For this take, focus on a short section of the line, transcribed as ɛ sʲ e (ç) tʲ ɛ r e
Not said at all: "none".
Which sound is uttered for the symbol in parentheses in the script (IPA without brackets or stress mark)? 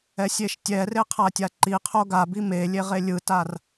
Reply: ʃ